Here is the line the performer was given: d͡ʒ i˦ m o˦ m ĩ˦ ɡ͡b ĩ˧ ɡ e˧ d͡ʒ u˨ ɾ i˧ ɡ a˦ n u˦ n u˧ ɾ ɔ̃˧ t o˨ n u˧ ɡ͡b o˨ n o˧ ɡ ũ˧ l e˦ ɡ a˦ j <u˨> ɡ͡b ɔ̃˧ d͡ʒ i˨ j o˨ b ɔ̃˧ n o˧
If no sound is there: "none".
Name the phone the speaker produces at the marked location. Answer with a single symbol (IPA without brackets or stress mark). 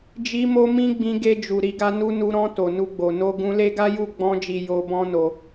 u˦˨